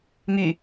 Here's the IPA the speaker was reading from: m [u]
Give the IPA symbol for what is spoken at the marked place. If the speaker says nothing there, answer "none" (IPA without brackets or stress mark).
y